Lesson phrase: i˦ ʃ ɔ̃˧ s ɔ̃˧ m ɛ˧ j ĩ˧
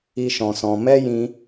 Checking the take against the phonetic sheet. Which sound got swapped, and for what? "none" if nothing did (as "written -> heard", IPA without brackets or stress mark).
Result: ɛ˧ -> ɛ˦